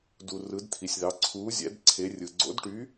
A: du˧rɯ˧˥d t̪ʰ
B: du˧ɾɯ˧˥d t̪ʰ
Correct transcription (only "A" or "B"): A